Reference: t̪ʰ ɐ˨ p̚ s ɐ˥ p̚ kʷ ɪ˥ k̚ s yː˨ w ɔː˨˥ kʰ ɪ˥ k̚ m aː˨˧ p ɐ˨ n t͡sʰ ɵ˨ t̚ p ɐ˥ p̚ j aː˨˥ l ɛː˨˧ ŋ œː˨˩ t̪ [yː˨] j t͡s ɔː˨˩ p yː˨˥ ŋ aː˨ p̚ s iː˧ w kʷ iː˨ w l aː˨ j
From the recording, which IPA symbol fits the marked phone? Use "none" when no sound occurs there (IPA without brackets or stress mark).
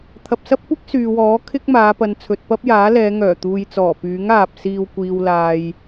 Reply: uː˨